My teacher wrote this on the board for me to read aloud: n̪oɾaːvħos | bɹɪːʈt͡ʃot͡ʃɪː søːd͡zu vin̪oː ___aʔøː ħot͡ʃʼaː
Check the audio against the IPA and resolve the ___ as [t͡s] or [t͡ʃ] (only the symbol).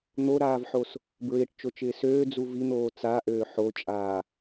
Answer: t͡s